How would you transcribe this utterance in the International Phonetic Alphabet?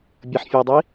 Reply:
bʲ ʌ ħ fʲ ʌː dˤ i

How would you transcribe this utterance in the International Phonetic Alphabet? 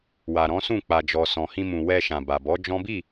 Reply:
w a˨ ɾ ɔ̃˨˦ s ũ˦˨ k͡p a˨ d͡ʒ ɔ˨ s ɔ̃˨ h ĩ˧ m ũ˨ w ɛ˧ ʃ ã˨ b a˨ b ɔ˨˦ d͡ʒ ɔ̃˦ b i˦˨

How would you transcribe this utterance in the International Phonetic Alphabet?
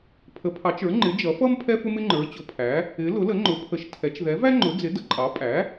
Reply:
pʰ ə˩˥ pʰ ɑ˩˥ t͡ʃ ə˞˩˥ ŋ͡ǃ ɪ˩˥ d͡ʒ ʌ˩˥ f ʌ˥ m pʰ ɛ˥ f ʊ˥ m ɪ˥ ŋ͡ǃ ə˞˩˥ t͡ɕ ʊ˩˥ pʰ æ˩˥ | ɪ˩˥ l ʊ˩˥ l ə˩˥ ŋ͡ǃ ʊ˩˥ pʰ ə˩˥ ʃ tʰ ɛ˩˥ t͡ʃ ð ɛ˩˥ v æ˥ ŋ͡ǃ ʊ˩˥ d͡z ɪ˩˥ d ə˩˥ ǃʼ ɑ˩˥ pʼ æ˩˥

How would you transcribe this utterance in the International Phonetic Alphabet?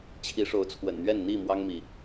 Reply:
t͡ɕʰ i˨˦ ʂ o˨˦ ʊ̯ t͡sʰ w ə̰˨˩ n n̪ ɥ ɛ˥˨ n n̪ i˥˨ m w ɑ˦ ŋ m i˨˦

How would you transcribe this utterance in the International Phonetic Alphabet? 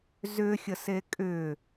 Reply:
z ʏ xʲ ə s e kʼ ʏ

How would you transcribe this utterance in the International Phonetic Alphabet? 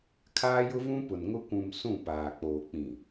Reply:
kʰ aː˦ j ʊ˦ v ũ˦ p ʊ˨ n ŋ ʊ˦ kʷ ũ˨ m s ũ˦˨ p aː˨ k͡p oː˨ k͡p ĩ˨

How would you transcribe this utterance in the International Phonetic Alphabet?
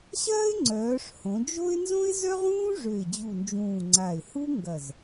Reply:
ɕ ɐː˥ ɪ̯ ŋ͡ǀ œː˩˧ ʂ h õ˩˧ d͡ʒ o˥ ɪ̯ n z õ˥ ɪ̯ z œ˥ ʁ ũː˥ ʐ ø˨˩ ɪ̯ d͡ʑ u˨˩ n d͡ʒ ũː˨˩ ŋ͡ǀ a˨˩ ɪ̯ h u˥ ŋ ɡ ɐ˨˩ z

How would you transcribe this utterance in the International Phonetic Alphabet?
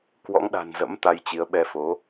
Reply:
k w ɔ̰˧˥ ŋ ɗ a̤˨˩ n z ə̰˧˥ m t̪ a˧ j t͡ɕ i˨˦ ə̯ ɓ ɛ˧ f o˨˦

